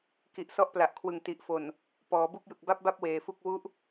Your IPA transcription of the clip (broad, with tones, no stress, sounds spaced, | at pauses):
k i˨˩ ʔ s ɔ˦˥ ʔ p l a˨˩ ʔ kʰ w ɯ˨˩ ŋ t i˨˩ ʔ f o˨˩ n | p ɔː˩˦ b u˥˩ k̚ j ɯ˨˩ k̚ b a˥˩ p̚ b a˥˩ p̚ w eː˨˩ f u˥˩ k̚ w u˦˥ ʔ